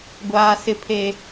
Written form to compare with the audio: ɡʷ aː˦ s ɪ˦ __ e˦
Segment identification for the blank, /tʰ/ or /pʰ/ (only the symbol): pʰ